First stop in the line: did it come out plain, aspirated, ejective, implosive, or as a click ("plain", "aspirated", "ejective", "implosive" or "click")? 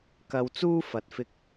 plain